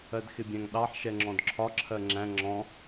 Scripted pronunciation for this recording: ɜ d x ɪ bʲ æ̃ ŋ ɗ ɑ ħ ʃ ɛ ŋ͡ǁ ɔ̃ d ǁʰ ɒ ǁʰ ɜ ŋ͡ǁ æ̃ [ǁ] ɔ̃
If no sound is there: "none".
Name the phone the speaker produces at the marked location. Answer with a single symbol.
ŋ͡ǁ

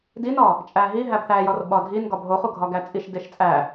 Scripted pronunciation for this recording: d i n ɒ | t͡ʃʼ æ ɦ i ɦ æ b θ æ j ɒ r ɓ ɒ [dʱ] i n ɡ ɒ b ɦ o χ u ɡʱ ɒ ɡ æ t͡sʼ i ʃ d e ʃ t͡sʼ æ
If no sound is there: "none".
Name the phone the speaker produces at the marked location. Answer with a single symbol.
dʱ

